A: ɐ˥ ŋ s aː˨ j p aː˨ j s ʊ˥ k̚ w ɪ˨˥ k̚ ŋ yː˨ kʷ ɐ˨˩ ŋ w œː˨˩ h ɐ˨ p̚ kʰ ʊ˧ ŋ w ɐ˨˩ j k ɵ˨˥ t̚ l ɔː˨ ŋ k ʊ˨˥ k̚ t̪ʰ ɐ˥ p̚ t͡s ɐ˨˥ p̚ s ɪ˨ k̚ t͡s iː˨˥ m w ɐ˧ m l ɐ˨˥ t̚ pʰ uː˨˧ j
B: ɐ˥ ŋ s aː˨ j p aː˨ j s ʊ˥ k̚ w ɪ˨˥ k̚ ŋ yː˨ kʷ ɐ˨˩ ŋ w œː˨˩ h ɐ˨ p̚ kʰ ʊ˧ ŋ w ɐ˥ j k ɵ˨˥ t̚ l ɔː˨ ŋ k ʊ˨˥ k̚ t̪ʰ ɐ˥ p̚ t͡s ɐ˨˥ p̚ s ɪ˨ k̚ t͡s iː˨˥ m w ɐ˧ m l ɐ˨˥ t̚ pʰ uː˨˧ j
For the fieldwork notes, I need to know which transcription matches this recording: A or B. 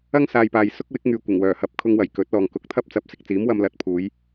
A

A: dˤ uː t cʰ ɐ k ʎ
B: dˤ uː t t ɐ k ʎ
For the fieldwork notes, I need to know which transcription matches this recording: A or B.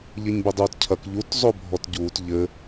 A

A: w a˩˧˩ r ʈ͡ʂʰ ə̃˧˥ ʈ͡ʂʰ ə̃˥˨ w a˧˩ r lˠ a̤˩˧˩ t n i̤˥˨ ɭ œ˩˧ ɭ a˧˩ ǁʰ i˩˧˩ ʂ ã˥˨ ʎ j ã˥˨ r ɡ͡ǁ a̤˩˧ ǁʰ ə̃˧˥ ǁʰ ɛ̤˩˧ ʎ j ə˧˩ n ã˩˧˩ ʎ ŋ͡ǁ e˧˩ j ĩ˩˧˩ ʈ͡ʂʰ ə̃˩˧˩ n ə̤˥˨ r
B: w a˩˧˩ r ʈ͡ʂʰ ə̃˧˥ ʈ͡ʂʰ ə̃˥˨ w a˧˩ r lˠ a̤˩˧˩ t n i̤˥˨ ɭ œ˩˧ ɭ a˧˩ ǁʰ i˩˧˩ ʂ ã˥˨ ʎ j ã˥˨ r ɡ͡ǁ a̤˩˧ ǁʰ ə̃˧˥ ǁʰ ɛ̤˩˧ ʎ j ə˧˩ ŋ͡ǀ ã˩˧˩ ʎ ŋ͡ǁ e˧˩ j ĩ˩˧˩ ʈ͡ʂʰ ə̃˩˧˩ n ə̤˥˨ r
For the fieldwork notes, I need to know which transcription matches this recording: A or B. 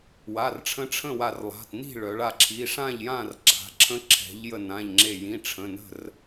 A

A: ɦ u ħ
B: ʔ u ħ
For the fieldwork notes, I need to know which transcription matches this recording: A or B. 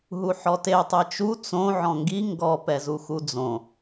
A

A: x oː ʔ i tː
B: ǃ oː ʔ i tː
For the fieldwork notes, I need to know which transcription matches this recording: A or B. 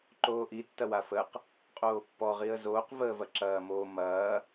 B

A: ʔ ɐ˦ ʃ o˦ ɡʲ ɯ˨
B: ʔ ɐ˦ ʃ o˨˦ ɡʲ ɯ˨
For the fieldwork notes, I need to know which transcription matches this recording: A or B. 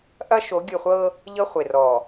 B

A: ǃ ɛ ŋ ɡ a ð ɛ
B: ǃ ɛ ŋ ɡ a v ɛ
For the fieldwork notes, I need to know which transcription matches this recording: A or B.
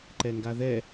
A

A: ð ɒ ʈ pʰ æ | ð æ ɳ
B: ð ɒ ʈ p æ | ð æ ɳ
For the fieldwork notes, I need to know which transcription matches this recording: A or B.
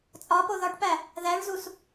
B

